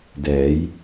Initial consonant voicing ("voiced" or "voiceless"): voiced